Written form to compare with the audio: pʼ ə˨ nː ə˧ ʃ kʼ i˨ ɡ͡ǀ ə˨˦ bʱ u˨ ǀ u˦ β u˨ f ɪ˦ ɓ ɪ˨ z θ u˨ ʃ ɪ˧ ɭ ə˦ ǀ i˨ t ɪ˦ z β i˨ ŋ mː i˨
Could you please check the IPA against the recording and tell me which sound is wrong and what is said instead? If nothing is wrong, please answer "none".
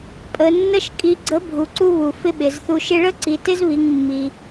none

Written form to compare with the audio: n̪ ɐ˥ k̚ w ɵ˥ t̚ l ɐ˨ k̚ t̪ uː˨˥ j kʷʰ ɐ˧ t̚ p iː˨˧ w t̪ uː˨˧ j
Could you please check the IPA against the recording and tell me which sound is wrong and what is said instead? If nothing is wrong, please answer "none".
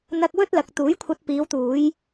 none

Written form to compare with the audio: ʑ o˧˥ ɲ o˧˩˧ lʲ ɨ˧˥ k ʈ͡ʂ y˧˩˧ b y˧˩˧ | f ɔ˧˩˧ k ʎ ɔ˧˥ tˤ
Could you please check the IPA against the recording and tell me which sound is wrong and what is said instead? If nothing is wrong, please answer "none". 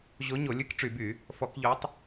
none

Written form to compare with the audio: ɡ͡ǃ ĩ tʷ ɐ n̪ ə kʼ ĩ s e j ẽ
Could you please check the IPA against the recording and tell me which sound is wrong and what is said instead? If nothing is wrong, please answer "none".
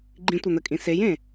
none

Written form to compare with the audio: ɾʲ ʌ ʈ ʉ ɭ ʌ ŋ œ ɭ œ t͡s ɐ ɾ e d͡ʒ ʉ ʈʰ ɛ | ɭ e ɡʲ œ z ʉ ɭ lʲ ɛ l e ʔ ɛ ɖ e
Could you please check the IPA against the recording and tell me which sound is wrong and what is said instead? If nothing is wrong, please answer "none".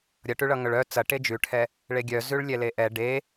ɾ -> ʈ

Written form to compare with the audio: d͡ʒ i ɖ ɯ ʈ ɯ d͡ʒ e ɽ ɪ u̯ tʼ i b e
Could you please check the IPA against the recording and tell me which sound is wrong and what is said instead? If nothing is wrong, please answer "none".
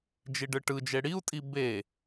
ɪ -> i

